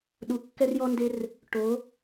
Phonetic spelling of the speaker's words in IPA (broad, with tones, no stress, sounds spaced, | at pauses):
ɗ u˨˥ kː ɛ˦ r j ɔ˦ n d e˦ r | ʈ o˨˥